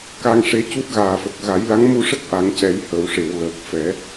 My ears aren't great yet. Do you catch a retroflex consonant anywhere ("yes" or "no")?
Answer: yes